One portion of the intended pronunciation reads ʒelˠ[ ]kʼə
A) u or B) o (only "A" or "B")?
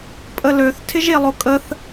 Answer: B